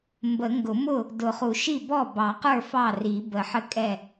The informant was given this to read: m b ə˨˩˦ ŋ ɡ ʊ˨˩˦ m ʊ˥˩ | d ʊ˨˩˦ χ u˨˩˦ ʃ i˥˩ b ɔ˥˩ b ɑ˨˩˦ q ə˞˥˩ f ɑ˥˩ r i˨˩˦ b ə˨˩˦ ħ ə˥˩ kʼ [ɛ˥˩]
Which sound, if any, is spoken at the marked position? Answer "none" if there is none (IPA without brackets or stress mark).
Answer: ɛ˥˩